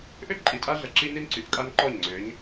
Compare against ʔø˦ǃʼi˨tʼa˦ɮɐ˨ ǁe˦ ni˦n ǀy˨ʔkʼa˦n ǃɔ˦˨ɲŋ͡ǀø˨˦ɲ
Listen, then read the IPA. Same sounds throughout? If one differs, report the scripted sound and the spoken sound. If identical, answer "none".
e˦ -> i˦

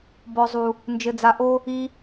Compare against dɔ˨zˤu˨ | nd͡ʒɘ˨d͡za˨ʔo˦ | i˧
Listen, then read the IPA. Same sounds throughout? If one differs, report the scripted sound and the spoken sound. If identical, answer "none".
d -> b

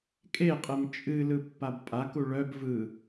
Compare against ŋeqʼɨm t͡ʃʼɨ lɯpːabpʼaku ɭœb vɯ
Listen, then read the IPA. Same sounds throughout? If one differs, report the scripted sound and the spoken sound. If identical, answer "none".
ŋ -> kʼ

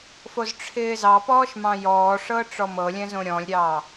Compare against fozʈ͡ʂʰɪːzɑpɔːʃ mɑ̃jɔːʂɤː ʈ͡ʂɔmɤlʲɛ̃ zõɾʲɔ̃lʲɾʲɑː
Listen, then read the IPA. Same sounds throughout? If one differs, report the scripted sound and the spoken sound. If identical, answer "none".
none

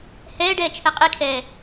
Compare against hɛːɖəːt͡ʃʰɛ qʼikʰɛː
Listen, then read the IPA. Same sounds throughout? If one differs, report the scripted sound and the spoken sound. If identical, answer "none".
əː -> ɛː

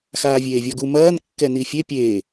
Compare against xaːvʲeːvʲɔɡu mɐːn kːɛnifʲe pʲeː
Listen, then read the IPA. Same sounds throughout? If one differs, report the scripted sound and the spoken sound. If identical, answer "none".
none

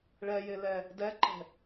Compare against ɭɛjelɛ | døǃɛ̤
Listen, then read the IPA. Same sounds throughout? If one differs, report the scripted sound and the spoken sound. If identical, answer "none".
ø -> ɛ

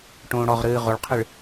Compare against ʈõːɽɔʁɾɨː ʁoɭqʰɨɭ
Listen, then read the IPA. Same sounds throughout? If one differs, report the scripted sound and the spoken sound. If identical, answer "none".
none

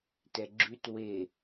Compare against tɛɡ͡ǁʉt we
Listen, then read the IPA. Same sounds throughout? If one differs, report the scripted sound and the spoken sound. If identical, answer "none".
none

